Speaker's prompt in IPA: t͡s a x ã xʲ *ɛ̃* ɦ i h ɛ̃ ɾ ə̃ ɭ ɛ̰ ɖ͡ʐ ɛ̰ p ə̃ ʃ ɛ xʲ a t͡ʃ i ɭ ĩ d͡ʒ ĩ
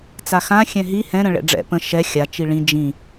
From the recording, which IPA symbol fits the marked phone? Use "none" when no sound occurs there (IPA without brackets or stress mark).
ɛ̃